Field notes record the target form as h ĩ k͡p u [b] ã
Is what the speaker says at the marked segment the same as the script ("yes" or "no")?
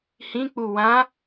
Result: no